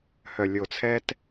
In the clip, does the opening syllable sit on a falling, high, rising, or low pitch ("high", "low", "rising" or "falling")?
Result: low